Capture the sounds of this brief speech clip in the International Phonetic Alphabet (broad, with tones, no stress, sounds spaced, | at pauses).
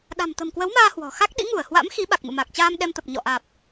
ɗ a̤˨˩ m t̪ ə̤˨˩ m k w ə˨˦ w m aː˧ h w ɔ̤˨˩ x a˦˥ k̚ ɗ ḭ˧˥ ŋ u˧˩ ə̯ h w a̰˧˥ m x i˨˦ ɓ a˨˩ k̚ m ɨ̰˧˨ m a˨˩ k̚ t͡ɕ aː˧ m ɗ ɛ˧ m t̪ ə˨˩ p̚ ɲ ɔ̰˧˨ ʔ aː˨˩ p̚